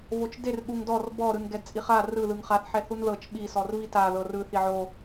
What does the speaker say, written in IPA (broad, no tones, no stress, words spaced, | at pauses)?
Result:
vot͡ʃder ɠuŋdɔr bɔ ɾɯnɡɛdt͡sʼiχa rɯ ðɯŋχaθ ħɛθunðɤt͡ʃ ɓi sɔrvita ðɤrɯ θiʕo